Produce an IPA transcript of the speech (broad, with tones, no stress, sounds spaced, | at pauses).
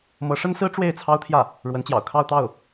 m ɤ˧˥ ʂ ə˥ n s ɹ̩˥ ʈ͡ʂ w e˥˩ ɪ̯ t͡sʰ ɑ˥ ʊ̯ t̪ʰ j ä˥˩ | ɻ w ə˧˥ n t͡ɕ j ɑ̰˨˩ ʊ̯ kʰ ɑ˥˧ ʊ̯ t̪ ɑ˥˩ ʊ̯